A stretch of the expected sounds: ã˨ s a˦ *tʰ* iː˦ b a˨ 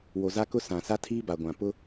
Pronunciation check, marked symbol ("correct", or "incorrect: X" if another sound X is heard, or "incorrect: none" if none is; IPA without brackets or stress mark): correct